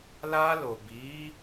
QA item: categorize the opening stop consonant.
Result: plain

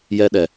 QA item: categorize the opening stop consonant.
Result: implosive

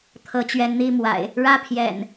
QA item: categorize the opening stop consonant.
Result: aspirated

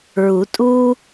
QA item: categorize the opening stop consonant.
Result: ejective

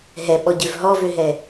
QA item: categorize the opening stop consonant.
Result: implosive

